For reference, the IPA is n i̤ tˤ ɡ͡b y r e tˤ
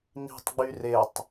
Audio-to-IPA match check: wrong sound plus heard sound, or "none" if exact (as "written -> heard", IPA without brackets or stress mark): none